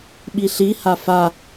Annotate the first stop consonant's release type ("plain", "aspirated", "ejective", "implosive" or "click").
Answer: implosive